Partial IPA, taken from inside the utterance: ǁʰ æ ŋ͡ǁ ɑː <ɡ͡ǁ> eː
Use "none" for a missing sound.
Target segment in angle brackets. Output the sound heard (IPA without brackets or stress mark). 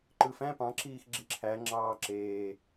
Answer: ǁ